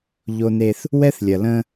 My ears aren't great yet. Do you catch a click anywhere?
no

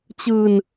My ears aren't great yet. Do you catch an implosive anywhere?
no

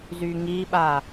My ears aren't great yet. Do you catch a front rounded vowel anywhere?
yes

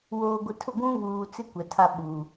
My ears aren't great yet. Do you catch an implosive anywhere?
yes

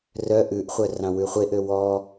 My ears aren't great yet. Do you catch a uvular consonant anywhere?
yes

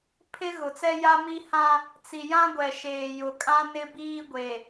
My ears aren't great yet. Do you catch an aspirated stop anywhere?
yes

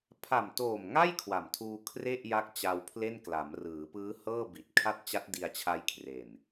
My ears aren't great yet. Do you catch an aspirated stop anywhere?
yes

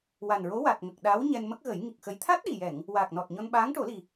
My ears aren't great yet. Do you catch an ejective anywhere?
no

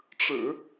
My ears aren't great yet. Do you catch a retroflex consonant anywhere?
yes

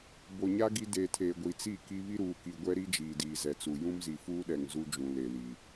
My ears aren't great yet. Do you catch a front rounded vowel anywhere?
no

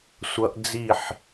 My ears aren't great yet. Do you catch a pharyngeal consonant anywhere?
yes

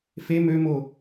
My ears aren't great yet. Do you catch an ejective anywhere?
no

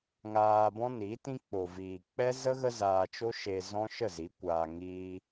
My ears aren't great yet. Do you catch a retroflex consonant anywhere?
no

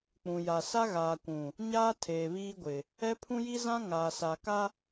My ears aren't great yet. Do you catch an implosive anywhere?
no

